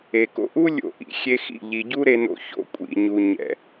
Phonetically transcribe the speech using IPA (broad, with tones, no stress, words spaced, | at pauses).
e˨ko̰˧ʔu˦ lʲo̰˧ʔḭ˨ xʲe˧xḭ˦˨ʎi˨ ɟu˦ɾe˧no̰˧ ço̰˧kʷʼḭ˨ɲu˨ ɲɛ̰˨